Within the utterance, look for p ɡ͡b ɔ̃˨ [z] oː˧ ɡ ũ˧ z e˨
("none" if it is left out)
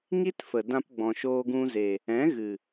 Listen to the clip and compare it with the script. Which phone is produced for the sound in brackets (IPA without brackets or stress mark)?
ʃ